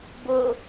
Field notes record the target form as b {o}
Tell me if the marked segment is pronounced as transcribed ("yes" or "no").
yes